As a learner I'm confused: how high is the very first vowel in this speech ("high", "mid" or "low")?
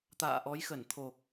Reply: low